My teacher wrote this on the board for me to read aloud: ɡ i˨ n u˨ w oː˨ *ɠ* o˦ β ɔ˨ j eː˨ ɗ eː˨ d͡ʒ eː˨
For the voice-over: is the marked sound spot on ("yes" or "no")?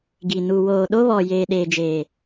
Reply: no